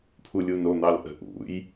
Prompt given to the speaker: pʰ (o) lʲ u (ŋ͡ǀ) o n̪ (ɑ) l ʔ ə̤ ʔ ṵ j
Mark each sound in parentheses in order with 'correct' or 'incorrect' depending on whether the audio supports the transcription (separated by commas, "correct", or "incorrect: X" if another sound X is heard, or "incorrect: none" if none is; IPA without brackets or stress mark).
incorrect: u, incorrect: n, correct